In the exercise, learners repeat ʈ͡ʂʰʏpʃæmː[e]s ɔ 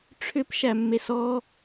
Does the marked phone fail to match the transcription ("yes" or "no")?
no